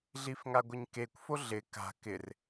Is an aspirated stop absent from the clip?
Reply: yes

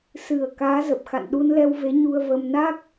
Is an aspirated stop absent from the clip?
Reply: yes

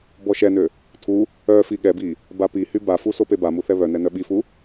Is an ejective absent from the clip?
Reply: yes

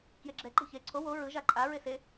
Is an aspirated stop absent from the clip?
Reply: no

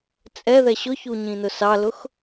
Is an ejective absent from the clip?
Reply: no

